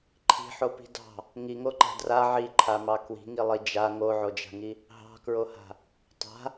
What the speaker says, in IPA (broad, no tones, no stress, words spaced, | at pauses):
ǃʰi̤ħopi̤ dɑ̤ | ŋiŋoǃa̤ dra ʕiǃʰamɑ kwi̤ŋilˠi d͡ʒa ŋoʕod͡ʒa̤ŋi | ɦɑ̤kɹoha̤ | tˤa̤